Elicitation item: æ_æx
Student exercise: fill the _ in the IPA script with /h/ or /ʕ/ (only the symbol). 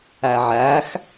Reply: ʕ